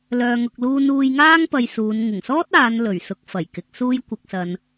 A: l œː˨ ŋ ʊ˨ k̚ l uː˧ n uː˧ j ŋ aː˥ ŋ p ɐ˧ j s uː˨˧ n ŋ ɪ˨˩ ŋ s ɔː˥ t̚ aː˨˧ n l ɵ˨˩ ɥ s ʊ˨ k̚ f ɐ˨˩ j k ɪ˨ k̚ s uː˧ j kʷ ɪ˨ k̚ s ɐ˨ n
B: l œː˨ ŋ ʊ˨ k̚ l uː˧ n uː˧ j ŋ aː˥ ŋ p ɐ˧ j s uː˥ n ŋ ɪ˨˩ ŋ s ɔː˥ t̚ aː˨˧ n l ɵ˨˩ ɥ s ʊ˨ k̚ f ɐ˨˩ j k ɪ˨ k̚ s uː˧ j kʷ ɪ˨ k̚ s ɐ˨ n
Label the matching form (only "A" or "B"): A